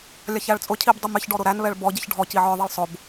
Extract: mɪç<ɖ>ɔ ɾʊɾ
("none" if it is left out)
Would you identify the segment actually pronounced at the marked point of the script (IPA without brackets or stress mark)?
ɖ